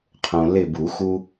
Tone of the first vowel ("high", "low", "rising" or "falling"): low